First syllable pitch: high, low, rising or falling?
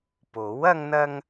rising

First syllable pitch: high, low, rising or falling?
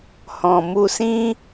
low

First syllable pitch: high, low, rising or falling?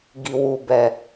low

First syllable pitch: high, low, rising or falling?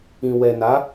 low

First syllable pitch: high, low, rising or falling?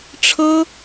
high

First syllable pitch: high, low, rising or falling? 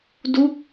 falling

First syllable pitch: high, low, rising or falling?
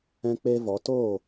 high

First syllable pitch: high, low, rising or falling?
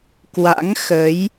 rising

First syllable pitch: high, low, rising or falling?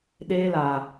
high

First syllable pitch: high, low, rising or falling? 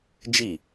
falling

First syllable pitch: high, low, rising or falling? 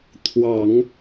low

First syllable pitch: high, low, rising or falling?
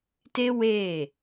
high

